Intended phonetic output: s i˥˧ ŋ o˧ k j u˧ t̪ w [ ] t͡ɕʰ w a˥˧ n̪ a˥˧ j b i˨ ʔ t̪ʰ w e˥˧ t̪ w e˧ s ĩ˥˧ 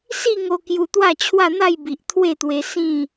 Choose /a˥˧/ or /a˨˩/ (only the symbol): a˥˧